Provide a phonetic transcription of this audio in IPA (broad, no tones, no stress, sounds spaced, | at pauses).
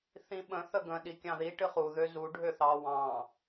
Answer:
θ ĩ ɓ ə̃ θ ə ɡ ə̃ ɗ i kʲ ɑ̃ ð i ʈ ɨ χ u ð ø z u ɖʱ ø θ ɑ w ɑ̃